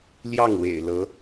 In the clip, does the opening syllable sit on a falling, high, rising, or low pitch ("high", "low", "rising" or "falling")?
falling